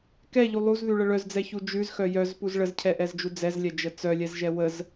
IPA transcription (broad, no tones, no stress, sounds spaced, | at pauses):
k ɛ ʎ u lˠ u z ð ʉ ɭ ə ɭ œ z d͡z ɛ ç u d͡ʒ ʉ z x œ j œ z p u z ɭ ə z cʰ ɛ ʔ ɛ z d͡ʒ u d͡z ɛ z lʲ ɛ d͡ʒ ə t͡s œ lʲ ɛ z ʒ ɛ w ə z